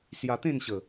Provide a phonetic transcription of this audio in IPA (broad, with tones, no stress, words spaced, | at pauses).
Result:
sja˧t̪ẽ˥˧nɕə˨˩